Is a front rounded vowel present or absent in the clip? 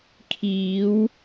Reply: absent